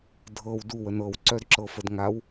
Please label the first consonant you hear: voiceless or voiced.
voiced